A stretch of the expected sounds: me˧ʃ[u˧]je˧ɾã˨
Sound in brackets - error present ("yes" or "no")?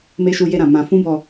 no